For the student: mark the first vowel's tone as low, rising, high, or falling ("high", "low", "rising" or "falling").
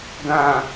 low